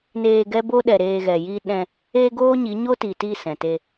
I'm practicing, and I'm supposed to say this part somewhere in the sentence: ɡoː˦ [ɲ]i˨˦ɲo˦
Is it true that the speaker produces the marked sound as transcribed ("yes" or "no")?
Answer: yes